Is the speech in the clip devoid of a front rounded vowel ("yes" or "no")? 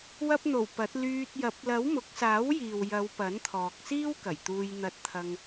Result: no